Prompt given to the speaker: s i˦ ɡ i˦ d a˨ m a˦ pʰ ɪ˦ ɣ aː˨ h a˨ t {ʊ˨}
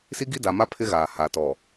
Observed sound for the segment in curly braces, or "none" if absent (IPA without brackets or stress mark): ɔ˨